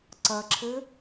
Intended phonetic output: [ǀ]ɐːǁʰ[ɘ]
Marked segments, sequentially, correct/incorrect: correct, correct

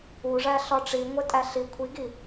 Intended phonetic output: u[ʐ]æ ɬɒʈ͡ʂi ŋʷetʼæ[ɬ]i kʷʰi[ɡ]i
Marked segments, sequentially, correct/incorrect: correct, correct, correct

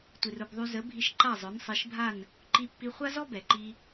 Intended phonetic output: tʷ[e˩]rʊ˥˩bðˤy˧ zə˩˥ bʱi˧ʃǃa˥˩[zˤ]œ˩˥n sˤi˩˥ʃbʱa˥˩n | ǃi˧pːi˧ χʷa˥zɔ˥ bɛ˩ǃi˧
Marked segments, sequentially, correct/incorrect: incorrect: i˩, correct

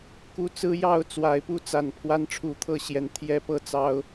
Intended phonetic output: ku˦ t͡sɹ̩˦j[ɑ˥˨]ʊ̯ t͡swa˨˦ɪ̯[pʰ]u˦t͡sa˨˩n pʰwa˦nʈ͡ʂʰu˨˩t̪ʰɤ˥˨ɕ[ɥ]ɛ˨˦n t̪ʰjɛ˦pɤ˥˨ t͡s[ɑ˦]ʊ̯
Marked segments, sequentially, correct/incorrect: correct, incorrect: p, incorrect: j, correct

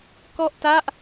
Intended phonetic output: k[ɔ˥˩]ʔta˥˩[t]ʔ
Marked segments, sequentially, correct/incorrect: correct, incorrect: none

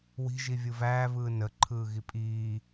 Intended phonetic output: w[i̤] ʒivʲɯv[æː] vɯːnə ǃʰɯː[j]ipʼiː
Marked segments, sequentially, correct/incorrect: correct, correct, incorrect: ɣ

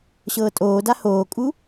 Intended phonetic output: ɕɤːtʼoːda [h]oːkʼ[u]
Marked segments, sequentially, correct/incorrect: correct, correct

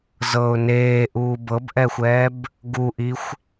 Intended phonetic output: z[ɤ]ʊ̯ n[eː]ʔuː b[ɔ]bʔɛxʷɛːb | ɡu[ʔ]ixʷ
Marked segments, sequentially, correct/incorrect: correct, correct, incorrect: ɤ, correct

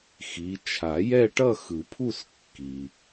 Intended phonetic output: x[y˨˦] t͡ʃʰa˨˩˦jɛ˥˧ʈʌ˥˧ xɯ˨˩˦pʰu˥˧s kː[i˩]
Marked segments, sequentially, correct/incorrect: incorrect: i˨˦, correct

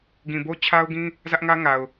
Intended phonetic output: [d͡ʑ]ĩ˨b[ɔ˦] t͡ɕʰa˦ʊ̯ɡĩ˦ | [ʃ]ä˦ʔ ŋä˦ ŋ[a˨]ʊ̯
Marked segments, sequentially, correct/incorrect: incorrect: ɡ, incorrect: o˦, incorrect: z, correct

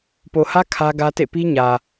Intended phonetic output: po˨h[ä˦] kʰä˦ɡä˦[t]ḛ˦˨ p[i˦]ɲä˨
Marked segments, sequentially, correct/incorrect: correct, correct, correct

